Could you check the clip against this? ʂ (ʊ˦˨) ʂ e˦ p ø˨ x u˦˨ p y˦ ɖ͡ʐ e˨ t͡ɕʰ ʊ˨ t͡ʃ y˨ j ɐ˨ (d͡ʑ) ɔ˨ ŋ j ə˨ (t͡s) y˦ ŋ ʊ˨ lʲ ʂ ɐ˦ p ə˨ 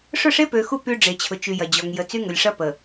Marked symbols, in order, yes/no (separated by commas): yes, yes, yes